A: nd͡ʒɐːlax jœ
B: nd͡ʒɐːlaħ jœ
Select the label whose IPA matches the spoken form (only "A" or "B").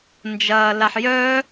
B